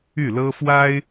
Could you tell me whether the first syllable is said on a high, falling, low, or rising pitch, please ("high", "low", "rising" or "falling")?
falling